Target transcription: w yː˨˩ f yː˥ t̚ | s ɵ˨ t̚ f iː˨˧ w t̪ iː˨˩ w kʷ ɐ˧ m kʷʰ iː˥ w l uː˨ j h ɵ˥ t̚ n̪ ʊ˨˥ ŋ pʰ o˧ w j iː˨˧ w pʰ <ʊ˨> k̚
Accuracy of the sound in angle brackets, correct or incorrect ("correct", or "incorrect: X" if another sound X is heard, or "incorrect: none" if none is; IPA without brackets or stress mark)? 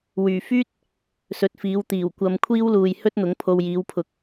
incorrect: ʊ˨˥